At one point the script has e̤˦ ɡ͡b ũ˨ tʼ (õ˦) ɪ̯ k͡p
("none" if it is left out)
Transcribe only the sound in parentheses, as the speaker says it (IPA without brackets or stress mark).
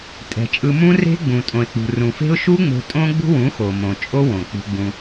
õ˨